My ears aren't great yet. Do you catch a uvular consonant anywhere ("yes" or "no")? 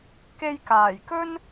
no